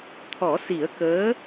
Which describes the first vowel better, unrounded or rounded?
rounded